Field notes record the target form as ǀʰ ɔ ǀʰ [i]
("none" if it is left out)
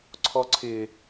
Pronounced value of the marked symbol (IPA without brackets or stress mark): ɪ